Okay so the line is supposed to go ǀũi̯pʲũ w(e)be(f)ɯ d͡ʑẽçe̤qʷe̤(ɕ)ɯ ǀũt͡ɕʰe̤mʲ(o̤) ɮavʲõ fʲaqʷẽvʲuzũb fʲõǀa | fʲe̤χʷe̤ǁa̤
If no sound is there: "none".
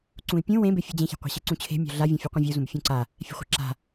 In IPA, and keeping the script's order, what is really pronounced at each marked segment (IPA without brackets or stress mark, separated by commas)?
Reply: ẽ, fʲ, ɕ, o̤